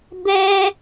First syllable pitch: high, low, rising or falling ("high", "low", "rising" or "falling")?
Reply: high